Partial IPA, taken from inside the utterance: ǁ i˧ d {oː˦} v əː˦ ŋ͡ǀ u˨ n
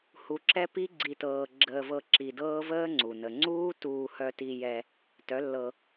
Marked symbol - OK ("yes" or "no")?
no